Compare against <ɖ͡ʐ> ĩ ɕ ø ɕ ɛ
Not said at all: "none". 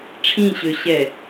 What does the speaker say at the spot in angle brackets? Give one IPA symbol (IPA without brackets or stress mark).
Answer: ʈ͡ʂʰ